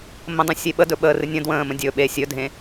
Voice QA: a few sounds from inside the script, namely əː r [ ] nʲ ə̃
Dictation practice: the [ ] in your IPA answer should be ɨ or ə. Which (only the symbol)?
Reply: ɨ